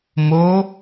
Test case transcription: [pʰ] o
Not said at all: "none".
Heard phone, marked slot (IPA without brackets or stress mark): m